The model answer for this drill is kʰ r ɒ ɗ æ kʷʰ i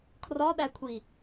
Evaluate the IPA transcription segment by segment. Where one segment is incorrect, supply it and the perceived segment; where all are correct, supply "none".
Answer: none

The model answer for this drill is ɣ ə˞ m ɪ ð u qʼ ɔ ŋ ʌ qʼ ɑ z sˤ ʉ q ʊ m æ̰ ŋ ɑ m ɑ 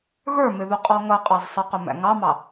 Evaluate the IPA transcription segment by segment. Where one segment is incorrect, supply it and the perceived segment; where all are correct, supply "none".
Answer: ʉ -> ə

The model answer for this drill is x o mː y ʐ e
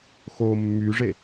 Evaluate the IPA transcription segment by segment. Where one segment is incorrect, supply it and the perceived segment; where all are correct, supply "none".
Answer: none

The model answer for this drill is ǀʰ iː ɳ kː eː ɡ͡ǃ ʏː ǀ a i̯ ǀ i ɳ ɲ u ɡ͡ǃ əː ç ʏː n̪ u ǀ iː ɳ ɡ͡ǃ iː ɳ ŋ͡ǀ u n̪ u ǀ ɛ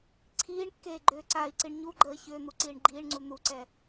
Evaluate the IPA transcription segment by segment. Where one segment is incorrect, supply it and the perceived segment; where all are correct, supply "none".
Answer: none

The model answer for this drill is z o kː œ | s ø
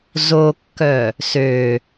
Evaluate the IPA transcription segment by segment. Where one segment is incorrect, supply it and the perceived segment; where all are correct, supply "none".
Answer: none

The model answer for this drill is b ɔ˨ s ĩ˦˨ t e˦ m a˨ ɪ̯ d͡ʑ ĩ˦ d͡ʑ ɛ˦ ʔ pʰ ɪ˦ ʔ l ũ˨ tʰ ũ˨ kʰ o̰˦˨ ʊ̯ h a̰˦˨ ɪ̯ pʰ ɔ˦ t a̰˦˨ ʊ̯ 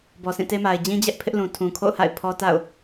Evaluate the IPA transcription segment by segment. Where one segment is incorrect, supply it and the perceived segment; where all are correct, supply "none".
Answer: none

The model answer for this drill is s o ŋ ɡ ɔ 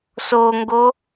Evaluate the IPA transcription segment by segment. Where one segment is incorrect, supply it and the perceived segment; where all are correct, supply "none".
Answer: ɔ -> o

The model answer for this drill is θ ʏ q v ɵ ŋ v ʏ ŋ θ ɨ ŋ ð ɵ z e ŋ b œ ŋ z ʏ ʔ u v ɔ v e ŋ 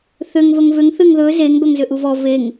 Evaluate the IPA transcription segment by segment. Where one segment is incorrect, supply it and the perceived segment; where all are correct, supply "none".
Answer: q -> ŋ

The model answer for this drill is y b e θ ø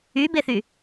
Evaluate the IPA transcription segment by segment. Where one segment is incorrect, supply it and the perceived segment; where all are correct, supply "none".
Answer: ø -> y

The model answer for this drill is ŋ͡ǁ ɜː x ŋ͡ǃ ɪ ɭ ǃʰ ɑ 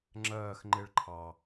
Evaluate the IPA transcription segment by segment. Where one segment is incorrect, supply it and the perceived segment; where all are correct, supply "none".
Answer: none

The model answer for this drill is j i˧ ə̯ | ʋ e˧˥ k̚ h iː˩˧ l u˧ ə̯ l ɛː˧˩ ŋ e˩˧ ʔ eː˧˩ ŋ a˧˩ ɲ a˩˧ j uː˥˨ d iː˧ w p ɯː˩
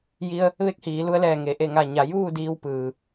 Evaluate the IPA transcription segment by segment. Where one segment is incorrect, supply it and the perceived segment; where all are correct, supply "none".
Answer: eː˧˩ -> e˧˩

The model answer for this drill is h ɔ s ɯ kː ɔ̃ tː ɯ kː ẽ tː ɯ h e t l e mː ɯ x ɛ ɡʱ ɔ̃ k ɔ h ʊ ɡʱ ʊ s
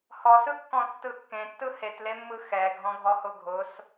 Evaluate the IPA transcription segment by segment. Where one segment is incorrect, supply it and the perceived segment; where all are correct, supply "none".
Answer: k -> ɡʱ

